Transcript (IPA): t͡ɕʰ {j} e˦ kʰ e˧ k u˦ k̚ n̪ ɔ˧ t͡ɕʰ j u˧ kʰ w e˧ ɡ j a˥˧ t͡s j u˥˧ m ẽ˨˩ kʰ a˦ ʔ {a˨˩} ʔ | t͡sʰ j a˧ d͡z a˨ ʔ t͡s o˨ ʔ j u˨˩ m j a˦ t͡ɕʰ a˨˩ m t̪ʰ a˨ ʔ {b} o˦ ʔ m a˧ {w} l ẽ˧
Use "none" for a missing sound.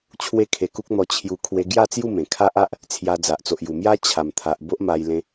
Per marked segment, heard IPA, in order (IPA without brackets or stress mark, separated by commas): w, a˦, b, j